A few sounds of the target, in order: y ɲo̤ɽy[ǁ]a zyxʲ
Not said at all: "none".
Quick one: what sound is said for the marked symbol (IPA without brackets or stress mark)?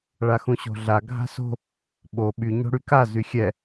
k